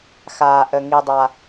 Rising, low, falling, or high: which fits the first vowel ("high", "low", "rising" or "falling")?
low